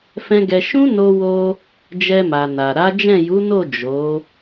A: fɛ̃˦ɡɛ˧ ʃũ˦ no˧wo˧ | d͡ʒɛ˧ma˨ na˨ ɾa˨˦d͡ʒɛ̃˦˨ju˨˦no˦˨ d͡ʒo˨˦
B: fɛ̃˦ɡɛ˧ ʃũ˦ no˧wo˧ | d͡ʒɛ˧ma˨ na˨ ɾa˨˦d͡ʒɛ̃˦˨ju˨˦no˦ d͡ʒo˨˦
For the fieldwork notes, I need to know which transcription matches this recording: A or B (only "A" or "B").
A